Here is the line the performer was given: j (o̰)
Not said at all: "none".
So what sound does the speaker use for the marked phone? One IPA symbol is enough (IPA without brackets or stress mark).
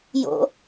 o̰